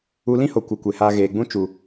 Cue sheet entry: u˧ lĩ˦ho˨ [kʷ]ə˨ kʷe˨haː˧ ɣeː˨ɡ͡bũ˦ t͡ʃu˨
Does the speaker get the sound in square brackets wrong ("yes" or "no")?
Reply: no